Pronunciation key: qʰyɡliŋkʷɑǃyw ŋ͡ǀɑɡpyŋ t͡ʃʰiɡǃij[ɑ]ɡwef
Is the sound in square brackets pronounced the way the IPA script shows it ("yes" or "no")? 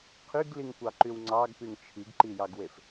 yes